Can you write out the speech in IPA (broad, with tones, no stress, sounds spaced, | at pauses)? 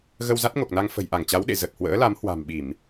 ɣ ə˧ w z a˦˥ t̚ ŋ o˨˩ k̚ n a˧ ŋ f ə̤˨˩ j ʔ a˧˩ ŋ t͡ɕ a˨˦ w ɗ ḛ˧˨ z ə˨˩ t̚ h w ə̰ː˧˥ l a˨˦ m h w a̤˨˩ m ɓ i˧˩˨ m